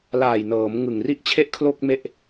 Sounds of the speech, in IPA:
l aː˨˩ j n ɤː˩˦ m ŋ ɯ˨˩ ŋ r i˦˥ ʔ t͡ɕʰ e˥˩ ʔ kʰ l o˥˩ k̚ m e˥˩ ʔ

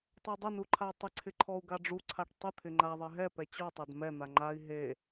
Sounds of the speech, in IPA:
tˤ ɛ dˤ ɪ n u ǃʰ a tˤ ɪ ǀʰ ɪ ǃʰ ɔ u̯ ɡ a ɖ͡ʐ u ǀʰ a ʈ tˤ ɪ t̪ʰ ɪ ŋ͡ǃ a ðˤ e ɦ ɛ p ɛ t͡ɕ ɔ tˤ a d m ɛ n̪ a ŋ͡ǃ a i̯ ɦ e

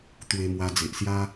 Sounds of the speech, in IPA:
t̪ w e˧ m w a˧ d͡z e˨ ʔ s j a˦

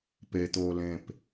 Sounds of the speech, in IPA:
p e t̪ oː l ẽ p

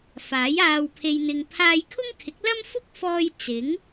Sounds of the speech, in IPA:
f aː˨˥ j aː˨ w pʰ e˨ j n̪ ɪ˨ ŋ pʰ aː˧ j kʰ ʊ˥ ŋ kʰ ɪ˨˥ k̚ l ɐ˥ m f ʊ˥ k̚ f ɔː˧ j t͡s ɪ˨˥ ŋ

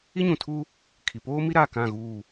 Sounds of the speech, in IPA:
i˦ ɲ ũ˨ tʰ u˦ | kʰ i˨ p oː˦ m i˦ ɾ a˦˨ k ã˦˨ ɣ uː˦˨

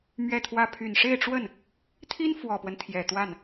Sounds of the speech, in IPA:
m ɥ ɛ˥˧ t̪ʰ w ä˥˩ pʰ y˨˩ n ʂ e˥˧ ɪ̯ ʈ͡ʂ w ə˥˩ n | t̪ʰ i˥ n f w ɔ˨˩ p w ə˦ n t̪ʰ j ɛ˨˩ t̪ w a˥˩ n

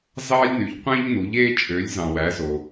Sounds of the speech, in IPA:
z ɑ˧ lʲ n y˩˧ ʎ qʷ æ̃˧ ʎ n u˩˧ ʎ e˧ t͡ʃʼ ø˩˧ lʲ z ɑ̃˩ w æ˩˧ z o˩

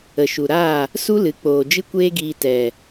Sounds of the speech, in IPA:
ə˨ ʃ u˨ ɾ aː˦˨ | s u˦ l ɨ˨˦ k͡p oː˨ d͡ʒ ɨ˦ kʷ eː˦ ɡ iː˧ t ɛ˨

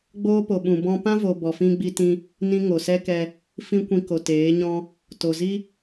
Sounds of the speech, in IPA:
ɡ͡b oː˦ p o˨ ɓ ũ˨ b ɔ̃˧ p ã˦ v o˨ b ɔ˨ f ĩ˧ ɡ͡b i˧ t ĩ˧ | n ĩ˧ ŋ o˨ s ɛ˦ k ɛ˧ | f ĩ˦ kʷ ĩ˧ k o˨ t eː˨˦ ɲ ɔ̃˦ | t o˨ z i˦

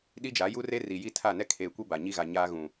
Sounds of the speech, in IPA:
ɗ i˦ d͡ʒ a˨˦ j u˦ r e˦ r i˨ j i˦ tʰ a˦˨ n ɛ˦ kʰ eː˨ kʷ e˦ b a˨ ɲ i˦ ɣ a˨ ɲ aː˦ ɣ ũ˨

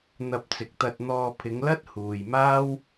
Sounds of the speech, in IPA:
n̪ ɐ˧ p̚ t͡s ɪ˨ k̚ t̪ ɐ˧ t̚ n̪ ɔː˧ pʰ ɪ˨˧ ŋ l ɐ˥ t̚ h uː˨ j m aː˥ w

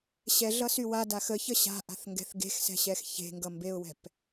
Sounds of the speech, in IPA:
ɕ ɛ ɮ ʌ s y w a d a x ə ç ə ɕ a̤ ʔ a̤ θ ŋ ɡ ɛ̤ θ ɡ e̤ x s ɛ̤ ɕ ɛ x ç e̤ ŋ ɡ ʌ m b e ʊ̯ w ɛ̤ p

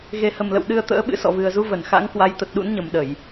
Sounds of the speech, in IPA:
ɣ e˨˩ h ə˨˩ m l ə̰˧˨ w ɗ ɨ˧ ə̯ t̪ ə̰ː˧˥ ɓ ɨ̰˧˥ s ɔ̰˧˨ v ɨ˨˩ ə̯ z u˧ v ə˧˩ n x a̰˧˥ ŋ k w a˨˦ j t̪ ə˨˩ t̚ ɗ ṵ˧˥ n ɲ ə˨˩ m ɗ ə˧˩˨ j

